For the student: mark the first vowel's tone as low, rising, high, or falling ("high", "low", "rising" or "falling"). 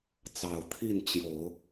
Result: low